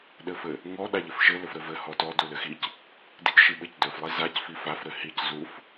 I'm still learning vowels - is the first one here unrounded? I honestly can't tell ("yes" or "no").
yes